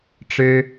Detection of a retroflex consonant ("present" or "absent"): present